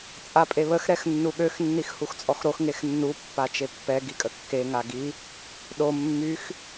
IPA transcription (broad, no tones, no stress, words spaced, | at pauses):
t͡sʼapʼeβəx ɾɛxnːuɠøx nːixhuxt͡sʼɔxɾox ŋexnːu pːat͡ʃepːɛ ɡikʼəkːe ŋaɡi | ɗo mːyx